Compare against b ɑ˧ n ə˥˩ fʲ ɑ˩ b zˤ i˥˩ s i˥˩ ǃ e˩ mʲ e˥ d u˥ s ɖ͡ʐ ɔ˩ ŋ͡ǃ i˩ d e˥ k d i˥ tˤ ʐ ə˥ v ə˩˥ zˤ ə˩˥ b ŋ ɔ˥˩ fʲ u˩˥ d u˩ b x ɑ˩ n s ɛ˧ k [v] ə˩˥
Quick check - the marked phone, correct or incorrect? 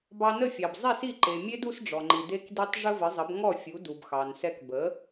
incorrect